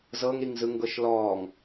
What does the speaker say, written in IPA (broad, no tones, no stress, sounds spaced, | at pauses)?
z ɤ ŋ ɾ i ŋ z ɯ ŋ ɡ ɤ ʃ l ɔː ŋ